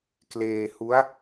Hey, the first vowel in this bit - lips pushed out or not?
no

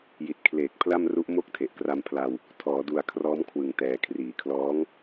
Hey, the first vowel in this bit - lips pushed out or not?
no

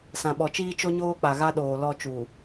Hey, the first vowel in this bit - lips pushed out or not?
no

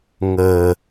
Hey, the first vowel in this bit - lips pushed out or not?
no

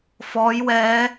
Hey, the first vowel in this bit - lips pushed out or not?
yes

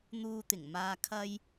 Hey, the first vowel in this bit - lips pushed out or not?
yes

